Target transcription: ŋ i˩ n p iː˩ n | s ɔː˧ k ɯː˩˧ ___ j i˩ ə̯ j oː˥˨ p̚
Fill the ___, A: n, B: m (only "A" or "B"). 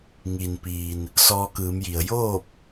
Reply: B